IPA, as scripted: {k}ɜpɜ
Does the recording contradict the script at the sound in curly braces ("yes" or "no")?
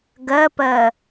yes